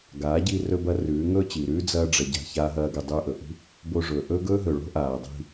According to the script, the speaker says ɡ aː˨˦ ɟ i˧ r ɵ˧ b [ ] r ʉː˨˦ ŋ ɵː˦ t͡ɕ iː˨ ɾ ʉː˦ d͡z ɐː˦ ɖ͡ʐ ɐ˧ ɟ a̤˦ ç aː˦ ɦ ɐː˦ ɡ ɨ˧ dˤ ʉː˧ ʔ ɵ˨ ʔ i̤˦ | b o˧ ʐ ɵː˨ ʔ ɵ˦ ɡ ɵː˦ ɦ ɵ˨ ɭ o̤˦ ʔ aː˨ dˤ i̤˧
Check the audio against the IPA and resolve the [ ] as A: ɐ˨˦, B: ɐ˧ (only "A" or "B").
B